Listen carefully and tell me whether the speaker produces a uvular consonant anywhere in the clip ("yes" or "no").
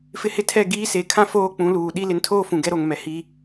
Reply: no